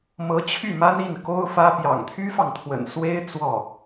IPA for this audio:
m ɤ˧˥ t͡ɕʰ y˥˩ m a˥ n i˥˩ n k o˥ ʊ̯ f ä˥ p j ɑ̰˨˩ ŋ t̪ʰ y˥ f ɑ˨ ŋ t̪ʰ w ə̰˨˩ n s w e˥ ɪ̯ t͡s w ɔ˥˩

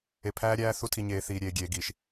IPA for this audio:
e˨ pʰ æː˦ ɾʲ æː˦ θ u˦ tʰ i˨ ɲ eː˨ θ iː˨ ɾʲ eː˨ ɡʲ eː˨ ɡ iː˨ ʃ

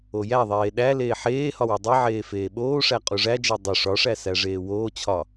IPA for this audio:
o j æ ðˤ eː ɗ æ l eː ħ eː h ɒ w u dˤ i ʕ eː f eː ɓ oː ʂ æ qʼ u ʐ æ d͡ʒ e dˤ o ʂ ɒ ʂ æ s æ ʐ eː w oː t͡ɕʰ ɒ

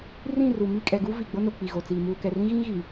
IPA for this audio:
r ĩ˦˨ r u˨ m i˦˨ kʼ ɛ˨ ɡ u˦ v i˨ ɡ͡b o˦ n o˨ k͡p i˨ ɣ o˨ t͡s iː˨ m uː˨ k ɛ˨ r ĩ˦ ɣ ĩ˦ ɣ i˨

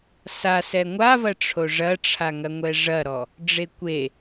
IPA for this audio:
s a s ɛ ŋʷ a v ɐ ʈ͡ʂʰ o ʐ ɐ ʈ͡ʂʰ a ŋ ɐ ŋʷ ɛ ʐ ɐ ɾ ɔ | ɖ͡ʐ e kʷ e

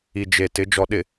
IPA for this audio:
i˨ d͡ʒ e˨ t ɪ˨˦ d͡ʒ ɔ˨ ɗ ɪ˨

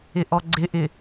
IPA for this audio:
ɪ ʔ ɔ ɡ͡ǀ ɪ ʔ ɪ

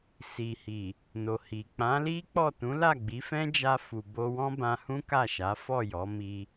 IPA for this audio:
s i˨ h i˨ | n o˨ h i˨ k͡p ã˨˦ l i˦ k͡p ɔ˦˨ t ũ˨˦ l a˦˨ ɡ͡b i˨˦ f ɛ̃˦ d͡ʒ a˧ f u˨ b o˧ w ɔ̃˦ b ã˧ h ũ˦ k a˦˨ ʃ a˨˦ f ɔ˦˨ j ɔ˨˦ m i˧

